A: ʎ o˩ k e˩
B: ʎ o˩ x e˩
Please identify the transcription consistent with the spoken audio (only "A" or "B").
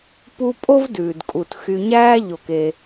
A